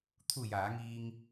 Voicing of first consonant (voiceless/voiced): voiceless